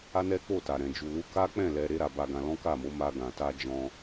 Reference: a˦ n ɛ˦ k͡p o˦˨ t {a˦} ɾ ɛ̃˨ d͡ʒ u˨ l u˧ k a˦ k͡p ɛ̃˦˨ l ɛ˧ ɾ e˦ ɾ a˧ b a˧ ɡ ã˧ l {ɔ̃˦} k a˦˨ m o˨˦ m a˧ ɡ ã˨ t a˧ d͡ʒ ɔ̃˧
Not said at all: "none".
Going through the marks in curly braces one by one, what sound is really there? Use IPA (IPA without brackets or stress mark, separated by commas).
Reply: a˨, ɔ̃˦